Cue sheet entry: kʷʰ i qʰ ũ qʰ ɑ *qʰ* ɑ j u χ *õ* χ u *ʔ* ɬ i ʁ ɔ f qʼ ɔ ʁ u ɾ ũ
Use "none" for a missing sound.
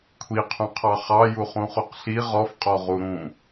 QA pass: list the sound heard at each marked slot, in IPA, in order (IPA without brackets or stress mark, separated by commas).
χ, ũ, q